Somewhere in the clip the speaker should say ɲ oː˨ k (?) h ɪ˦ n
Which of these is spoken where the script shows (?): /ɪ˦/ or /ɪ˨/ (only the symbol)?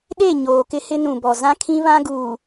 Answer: ɪ˦